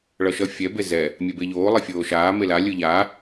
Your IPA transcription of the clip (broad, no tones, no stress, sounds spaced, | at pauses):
ɭ ʌ ʃ ʌ fʲ ɛ b e z ɛ | mʲ ɛ b e ʎ oː lˠ ɛ fʲ oː ʃ aː m e l a lʲ ɯ ʎ a